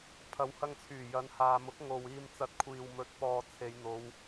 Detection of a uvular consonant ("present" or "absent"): absent